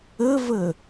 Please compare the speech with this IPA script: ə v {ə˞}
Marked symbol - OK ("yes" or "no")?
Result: no